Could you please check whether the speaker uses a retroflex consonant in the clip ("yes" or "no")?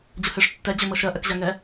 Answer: yes